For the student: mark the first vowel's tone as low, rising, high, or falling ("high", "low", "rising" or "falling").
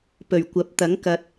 low